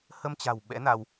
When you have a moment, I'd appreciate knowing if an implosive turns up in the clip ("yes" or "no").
yes